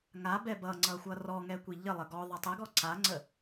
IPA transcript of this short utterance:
ŋa bɛbʌŋ͡ǀʌ xʷʌrɔŋɛ kʷiʎəlˠə ɡɔ ðˤatˤɛɡɔ ǀaŋ͡ǀə

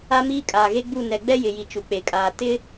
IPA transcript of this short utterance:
a˦miː˦ kʼaː˨ɣe˦ɡ͡bu˦˨ nɛ˨ɡ͡bɛ˦ jɪ˨ji˨ t͡ʃu˨k͡pe˨kʼaː˨ tɪ˦

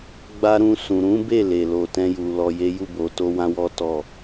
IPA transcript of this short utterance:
ɡ͡ba˧ɾũ˧ sũ˨ɾũ˨˦be˦˨ le˨lo˨tɛ̃˧ju˨ lɔ˨je˨˦ju˦˨ bo˨to˧ wã˦wɔ˦tɔ˦˨

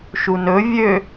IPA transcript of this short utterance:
ʃunɵ vʲø

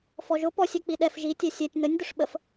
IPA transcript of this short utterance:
fɔʒʊ pɔsʲ ɛk͡piɗɛf ʒi tʲɛsʲɛtʲ n̪ənʲ d̪ʊʂɓəf

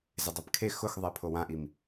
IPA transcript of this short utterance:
zɪdˤɛpkʰe xʊxðˤɛpʰo wãʔim

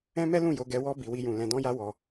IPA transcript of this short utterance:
ɛ̃˦mɛ˦lũ˦˨ jo˧ɡɛ˧wɔ˦ bi˧wi˦jũ˧ lɛ̃˧dɔ̃˦ja˦ wɔ˧

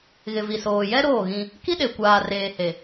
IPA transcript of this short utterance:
ɣɪ˨vi˨soː˨jɛ˦ ɾoː˦˨ɣĩ˦ | ki˦ɗe˨ kʷaː˨reː˨ he˨

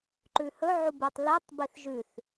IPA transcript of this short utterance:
ǃʉhɵ ʕubɨtˤ litˤ biθʒʉθ

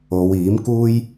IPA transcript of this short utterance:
o˨˧w iː˨˥mkuː˥j

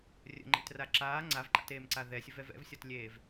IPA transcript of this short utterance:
rʲə̰ŋ͡ǃḛtra ǁaː ŋ͡ǀavǃa̰teːmǀa ðɛsʲəvɛv ɛ̰vsʲɒtlʲeːv

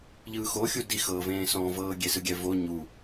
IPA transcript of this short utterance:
ʎɯːxoxʲu dixɤːvẽː sɔ̃vɤː ɡʲesɯɡʲɛvo ɲu

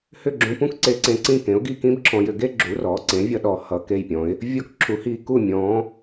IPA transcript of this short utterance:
hʏ˥˩ɡ͡ǁũ˧pũ˥k ǀe˧ǀẽ˧ǀĩ˥˩kẽ˩˥ʊ̯ ɡi˥˩kĩ˥bǁʰɔ̃˧jʏ˧ ɡe˥ɡ͡ǁu˩˥rɔ˩˥ǀẽ˩˥ vʲʌ˥ɗɔ˧ hʌ˧ke˥˩jpʲɔ̃˩˥ɪ̯ | vʲɔ˥kǁʰu˩˥ hi˧ku˥˩ mʲɔ̃˩˥

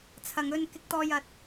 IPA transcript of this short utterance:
t͡sʰɐ˨ŋɵ˧n kɪ˨˥k̚t̪ɔː˨jɐ˨t̚

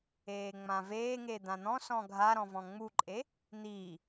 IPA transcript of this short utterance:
eːŋ͡mãveːŋe d̪ãn̪ɔ̃sɔ̃ ɡʱaɾɔ̃ vɔ̃ŋ͡muǃʼe | n̪i

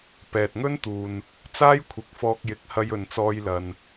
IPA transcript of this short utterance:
pɛː˨t̚ŋɵ˥nt̪uː˨n | t͡saː˥jkʷʰɪ˨˥k̚fɔː˧k̚jɪ˨˥k̚ hɐ˧jɵ˨nt͡sɔː˧jlɐ˨n

